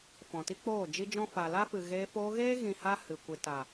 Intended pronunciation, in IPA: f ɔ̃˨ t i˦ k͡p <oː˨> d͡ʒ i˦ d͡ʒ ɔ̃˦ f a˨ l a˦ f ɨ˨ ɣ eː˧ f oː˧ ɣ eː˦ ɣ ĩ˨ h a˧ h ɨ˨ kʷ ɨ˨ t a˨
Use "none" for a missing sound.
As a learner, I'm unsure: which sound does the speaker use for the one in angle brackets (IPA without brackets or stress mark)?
oː˦˨